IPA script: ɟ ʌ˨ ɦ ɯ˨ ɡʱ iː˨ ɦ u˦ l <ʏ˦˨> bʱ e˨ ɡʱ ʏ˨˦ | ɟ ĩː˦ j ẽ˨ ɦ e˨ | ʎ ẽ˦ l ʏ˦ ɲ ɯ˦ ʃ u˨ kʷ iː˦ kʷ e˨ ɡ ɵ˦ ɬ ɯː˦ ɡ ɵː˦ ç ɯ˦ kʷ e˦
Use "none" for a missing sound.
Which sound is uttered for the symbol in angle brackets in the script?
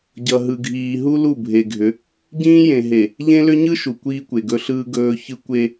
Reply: u˦˨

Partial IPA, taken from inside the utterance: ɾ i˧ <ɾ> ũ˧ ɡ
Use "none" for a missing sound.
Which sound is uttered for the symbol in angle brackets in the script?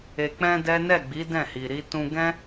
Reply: t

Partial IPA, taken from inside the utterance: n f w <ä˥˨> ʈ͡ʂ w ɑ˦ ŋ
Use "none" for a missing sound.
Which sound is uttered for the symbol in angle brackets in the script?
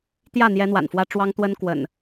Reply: ä˦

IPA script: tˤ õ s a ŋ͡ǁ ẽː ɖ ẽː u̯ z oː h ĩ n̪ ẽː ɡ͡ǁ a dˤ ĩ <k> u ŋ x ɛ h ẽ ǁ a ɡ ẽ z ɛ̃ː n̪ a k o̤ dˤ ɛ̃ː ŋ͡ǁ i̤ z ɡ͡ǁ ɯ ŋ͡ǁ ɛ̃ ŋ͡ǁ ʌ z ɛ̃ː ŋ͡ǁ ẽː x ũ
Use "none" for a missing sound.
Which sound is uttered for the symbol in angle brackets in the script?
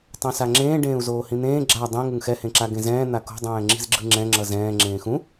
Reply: ŋ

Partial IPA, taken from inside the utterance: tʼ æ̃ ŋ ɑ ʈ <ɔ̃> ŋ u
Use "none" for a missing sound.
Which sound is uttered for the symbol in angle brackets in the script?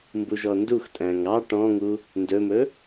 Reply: ɔ̃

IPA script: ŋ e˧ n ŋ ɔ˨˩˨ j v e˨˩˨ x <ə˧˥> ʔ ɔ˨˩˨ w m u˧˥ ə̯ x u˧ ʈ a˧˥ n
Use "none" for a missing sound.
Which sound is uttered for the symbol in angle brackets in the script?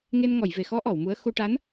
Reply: ɔ˧˥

